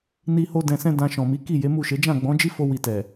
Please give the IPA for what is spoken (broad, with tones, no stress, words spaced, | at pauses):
ni˦ho˦ dɛ̃˧sɛ̃˦ dã˧ʃɔ̃˨mi˨˦ ki˦˨je˨˦mu˦˨ʃe˨˦ d͡ʒã˦˨ɡ͡bɔ̃˨˦d͡ʒi˦fo˧ wi˧tɛ˨